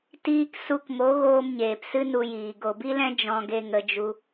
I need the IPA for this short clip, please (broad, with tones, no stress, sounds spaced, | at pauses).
t iː˧ k s u˧ k m o˨˦ ɣ oː˧ m ɲ eː˨ p s ɨ˦ n u˧ j iː˨ ɡ o˨ b i˦ l ɛ̃˦ d͡ʒ ɔ̃˧ ɡ e˧ ŋ ə˧ d͡ʒ u˧